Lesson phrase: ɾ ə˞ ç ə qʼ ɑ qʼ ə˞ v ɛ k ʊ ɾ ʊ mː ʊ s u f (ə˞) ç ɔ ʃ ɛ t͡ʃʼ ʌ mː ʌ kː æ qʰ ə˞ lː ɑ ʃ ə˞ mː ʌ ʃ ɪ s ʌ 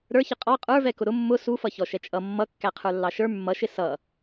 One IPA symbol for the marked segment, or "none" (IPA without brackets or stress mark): ʌ